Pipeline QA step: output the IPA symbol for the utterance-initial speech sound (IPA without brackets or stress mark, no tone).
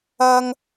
ɐ